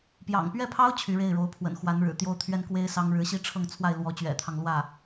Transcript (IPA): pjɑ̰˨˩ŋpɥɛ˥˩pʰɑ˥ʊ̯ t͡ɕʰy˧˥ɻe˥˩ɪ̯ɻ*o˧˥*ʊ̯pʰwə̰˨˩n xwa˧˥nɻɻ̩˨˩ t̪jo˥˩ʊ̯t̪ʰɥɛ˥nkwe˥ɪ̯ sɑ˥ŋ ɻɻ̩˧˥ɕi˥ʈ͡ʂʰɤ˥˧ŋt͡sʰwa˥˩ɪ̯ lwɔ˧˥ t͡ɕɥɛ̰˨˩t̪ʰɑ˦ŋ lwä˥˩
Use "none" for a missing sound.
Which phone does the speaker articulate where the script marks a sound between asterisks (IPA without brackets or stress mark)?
o˧˥